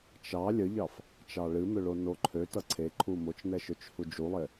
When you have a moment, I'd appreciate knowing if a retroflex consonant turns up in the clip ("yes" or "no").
yes